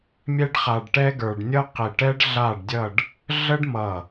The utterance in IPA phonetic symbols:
mʲ ɛ˥ ɖ χ a˧ ɖ ʈ ɛ˥ ɡ ə˞˧ ɖ nʲ ʌ˥ q i˧˩ ʈ ɛ˥ ɖ ɮ a˥˧ ɖ dʲ ʌ˥˧ ɖ | ɮ ə˥ ɖ m ʌ˧˩

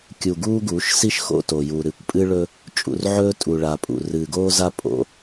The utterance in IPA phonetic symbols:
kʲ u˨ ɡ uː˦ ɡ uː˨˦ ʃ s i˦ ʃ x o̰˦ t o˨ j u˨ ɾ ɨ˨ kʷ pʼ ɨ˦ ɭ ɵ˦ | t͡ʃʼ ṵ˨ r ʕ ɵː˦ tʼ u˨ ɭ a˨ pʼ ṵ˨ r ɨː˨ ɡ oː˦ z a˦ pʼ o̰˦

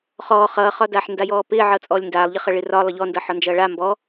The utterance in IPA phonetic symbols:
χ ɔː χ ʌː χ ɒ d aː ħ n d a j ɔː p ɪː ʕ ʌː t͡sʼ ɔː lʲ n d aː lˠ ʎ ɪ χ ʌ ɭ ɪ r ɒ lˠ ʌ ʎ ɔ n d ʌ ħ ɒ n d͡ʒ ʌː ɭ a m b ɔ

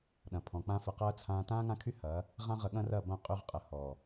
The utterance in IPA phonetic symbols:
ɗ ɐ̃˨ pʰ ɔ̃˨ k͡p ã˧ f ə˧ q ɐː˦ t͡sʰ ãː˧ t ãː˦ ŋ ã˦ kʰ y˦ h ɐː˨˦ | ʁ ã˦ ʁ ə˧ ɠ ɐ̃˦ r ɐ˦˨ b ɐ̃˦˨ qʼ y˧ ʁ qʼ ə˨ h ɔː˨

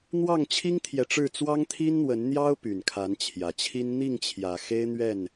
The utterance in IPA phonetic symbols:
n̪ w ɑ˥˨ ŋ t͡ɕʰ i˦ ŋ t̪ʰ j ɛ˨ ʈ͡ʂ ɻ̩˥˨ t͡s w ɑ˦ ŋ t̪ʰ i˦ n n̪ w ə˨˦ n n̪ j ɑ˦ ʊ̯ p y˨˩ n kʰ a˨˦ n t͡ɕʰ j ä˨˩ t͡ɕʰ i˦ n n̪ i˥˨ ŋ t͡ɕʰ j ä˨˩ x e˦ ɪ̯ n̪ ɥ ɛ˥˨ n

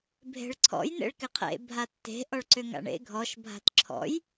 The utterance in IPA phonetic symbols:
bʱ e̤ ɭ ǀʰ ɔ̰ j n ḛ ɭ k ɪ qʰ ḛ bʱ a tː e̤ ʔ ɔ ɭ ǀ ʏ ŋ a̰ ɳ ḛ ɡʱ ɔ ʃ bʱ a̤ t ǁʰ ɔ̰ j

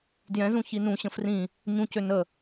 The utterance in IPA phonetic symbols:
d j ɛ̃ z ũ ç i n ũ ɕ ə̃ f r ĩ | ɲ ũ c ø n ə

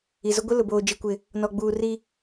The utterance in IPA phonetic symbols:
i˨ z ʊ˦ ɡʷ ɪ˦ l ʊ˨ b oː˨ d͡ʒ i˦ kʷ ɪ˦˨ | n ɔ˨ ɡ͡b uː˨ r i˦

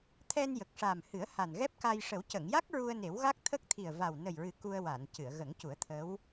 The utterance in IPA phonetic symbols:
t̪ʰ ɛ˧ n j ə˨˩ k̚ ʂ a˨˩ m h ɨ˨˩˦ ə̯ h a˨˩ n ɣ ɛ˦˥ p̚ k a˧ j ʂ ə˨˩˦ w c ə˨˩˨ ŋ j a˦˥ k̚ ɹ u˧ ə̯ n e˨˩˦ w ɣ a˦˥ k̚ t̪ʰ ə˦˥ k̚ t̪ʰ i˨˩ ə̯ v a˨˩ w n ə˨˩ j ɹ ɨ˨˩ k u˧ ə̯ w a˨˩˨ n c ɨ˨˩˨ ə̯ ɣ ə˨˩˦ ŋ c u˨˩˦ ə̯ t̪ʰ ə˧˥ w

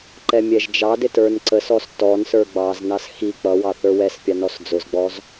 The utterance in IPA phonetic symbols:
ǃ ɛ mʲ ɛ ʒ d͡ʒ ɑ d ɪ t ə˞ n ǀ ə s ɔ s t ɔ n s ə˞ ɡ͡b ɑ z n ɑ s x i k͡p ʌ w ɑ θ ə˞ w ɛ s pʲ ɑ n ɔ s d͡z ʊ z ɡ͡b ɔ z

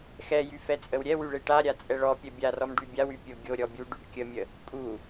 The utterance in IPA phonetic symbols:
x ɛ j y f ɛ t͡sʼ ə w ɾʲ ɛ w y ɭ e ʈ a ɾʲ a t͡sʼ ɛ ɭ ɔ pʲ ɛ bʲ a r ɔ m ɖ y bʲ a w y pʲ o ɡʲ o ɾʲ ɔ bʲ u ɖ y ɖ kʲ ə mʲ ə | kʼ u

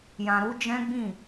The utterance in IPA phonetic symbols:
j ã˨ ɾ u˨˦ d͡ʒ ɛ̃˦ ɡ͡b ĩ˦˨

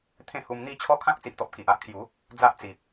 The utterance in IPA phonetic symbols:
t̪ʰ ẽ˥˧ h u˧ m n̪ i˥˧ t͡ɕʰ ɔ˦ kʰ ã˦ k̚ t͡s i˨ ʔ t̪ ɔ˨ p̚ k i˨ ʔ a˦ ʔ kʰ j u˨˦ | d͡z a˦ ʔ t͡s i˨ p̚

